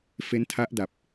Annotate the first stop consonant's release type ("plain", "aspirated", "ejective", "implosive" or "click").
aspirated